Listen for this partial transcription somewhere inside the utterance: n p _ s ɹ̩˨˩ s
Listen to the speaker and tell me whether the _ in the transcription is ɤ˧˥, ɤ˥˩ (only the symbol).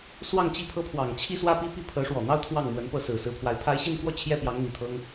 ɤ˥˩